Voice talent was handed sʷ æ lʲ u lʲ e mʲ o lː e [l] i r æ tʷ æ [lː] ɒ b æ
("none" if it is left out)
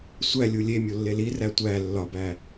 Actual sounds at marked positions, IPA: l, lː

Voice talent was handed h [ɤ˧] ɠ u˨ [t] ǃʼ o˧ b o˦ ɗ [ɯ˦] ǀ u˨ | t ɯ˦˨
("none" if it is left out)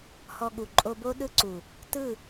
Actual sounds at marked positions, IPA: ɔ˧, none, ɯ˦

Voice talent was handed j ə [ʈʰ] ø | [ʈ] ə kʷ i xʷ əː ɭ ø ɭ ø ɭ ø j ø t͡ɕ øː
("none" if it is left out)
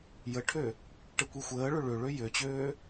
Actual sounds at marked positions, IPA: ʈʰ, ʈ

